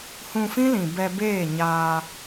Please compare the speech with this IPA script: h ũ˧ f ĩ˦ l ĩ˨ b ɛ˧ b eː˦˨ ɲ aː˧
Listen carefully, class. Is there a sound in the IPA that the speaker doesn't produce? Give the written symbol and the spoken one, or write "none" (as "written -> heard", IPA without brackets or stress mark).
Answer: none